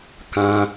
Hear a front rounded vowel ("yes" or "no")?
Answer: no